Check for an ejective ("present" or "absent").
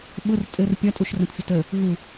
present